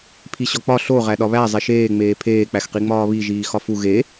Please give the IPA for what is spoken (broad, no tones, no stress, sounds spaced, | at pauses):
pʰ i ɕ ɒ k͡p ɒ ɬ o ʁ æ ɗ ɒ β æ zˤ e ʃ eː ŋ͡m eː pʰ eː k͡p æ x q i ŋ͡m ɒː β i ʒ iː x ɒ f u ɣ e